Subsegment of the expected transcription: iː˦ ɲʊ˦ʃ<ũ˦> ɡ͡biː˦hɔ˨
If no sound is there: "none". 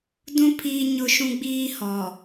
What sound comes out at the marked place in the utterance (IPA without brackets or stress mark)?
ũ˦